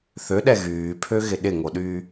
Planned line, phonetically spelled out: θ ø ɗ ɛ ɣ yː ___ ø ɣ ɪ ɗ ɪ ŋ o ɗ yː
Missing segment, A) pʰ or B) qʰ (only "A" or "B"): A